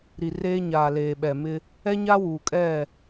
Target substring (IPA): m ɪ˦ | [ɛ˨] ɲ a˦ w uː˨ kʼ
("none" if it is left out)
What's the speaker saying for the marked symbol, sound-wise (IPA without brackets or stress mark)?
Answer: ɛ˦